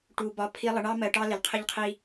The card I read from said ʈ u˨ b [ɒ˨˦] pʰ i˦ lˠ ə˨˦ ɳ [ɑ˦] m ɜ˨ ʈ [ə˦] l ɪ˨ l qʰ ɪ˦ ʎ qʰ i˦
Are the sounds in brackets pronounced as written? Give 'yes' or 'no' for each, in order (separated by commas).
yes, yes, no